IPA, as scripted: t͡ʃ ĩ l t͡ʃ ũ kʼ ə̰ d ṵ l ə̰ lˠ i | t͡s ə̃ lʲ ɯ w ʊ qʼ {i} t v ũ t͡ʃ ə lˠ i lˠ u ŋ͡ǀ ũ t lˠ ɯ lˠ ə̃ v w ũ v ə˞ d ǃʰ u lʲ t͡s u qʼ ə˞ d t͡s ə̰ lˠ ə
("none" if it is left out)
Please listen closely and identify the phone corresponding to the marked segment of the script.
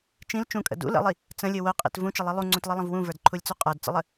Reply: ḭ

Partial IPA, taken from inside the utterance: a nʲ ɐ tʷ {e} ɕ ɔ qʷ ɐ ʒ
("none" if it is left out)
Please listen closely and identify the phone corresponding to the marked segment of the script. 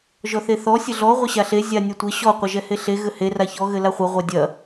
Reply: ɘ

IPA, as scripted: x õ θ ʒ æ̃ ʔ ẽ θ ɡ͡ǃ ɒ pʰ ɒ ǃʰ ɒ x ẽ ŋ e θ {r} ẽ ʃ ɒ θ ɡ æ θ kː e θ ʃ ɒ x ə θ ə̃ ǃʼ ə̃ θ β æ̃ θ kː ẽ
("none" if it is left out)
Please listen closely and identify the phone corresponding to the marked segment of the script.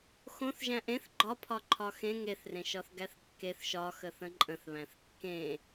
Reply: r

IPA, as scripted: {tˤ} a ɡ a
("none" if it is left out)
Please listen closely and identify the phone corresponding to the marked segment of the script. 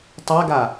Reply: tˤ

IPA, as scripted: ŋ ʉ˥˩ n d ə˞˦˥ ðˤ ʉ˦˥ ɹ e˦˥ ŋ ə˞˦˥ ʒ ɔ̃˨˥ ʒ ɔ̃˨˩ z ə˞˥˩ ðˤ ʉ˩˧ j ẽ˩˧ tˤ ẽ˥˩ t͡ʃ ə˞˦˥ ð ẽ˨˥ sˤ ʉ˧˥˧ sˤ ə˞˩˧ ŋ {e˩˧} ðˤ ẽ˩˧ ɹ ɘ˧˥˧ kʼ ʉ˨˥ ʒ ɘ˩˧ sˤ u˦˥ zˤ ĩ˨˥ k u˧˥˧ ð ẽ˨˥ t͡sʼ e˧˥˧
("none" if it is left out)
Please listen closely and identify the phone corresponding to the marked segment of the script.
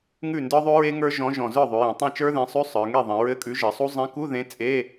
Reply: e˥˩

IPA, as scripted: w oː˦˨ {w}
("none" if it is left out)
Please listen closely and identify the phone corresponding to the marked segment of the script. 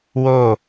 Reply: none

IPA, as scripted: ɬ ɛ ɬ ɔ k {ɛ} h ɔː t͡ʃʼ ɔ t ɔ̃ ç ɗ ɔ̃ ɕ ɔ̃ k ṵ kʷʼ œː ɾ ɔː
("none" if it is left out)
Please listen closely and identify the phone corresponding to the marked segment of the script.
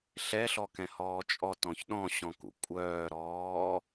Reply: ɛ̃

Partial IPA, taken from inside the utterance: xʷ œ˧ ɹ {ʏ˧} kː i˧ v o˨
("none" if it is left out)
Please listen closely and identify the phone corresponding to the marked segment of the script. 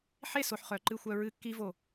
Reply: ɨ˧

